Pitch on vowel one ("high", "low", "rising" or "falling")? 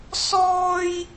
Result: high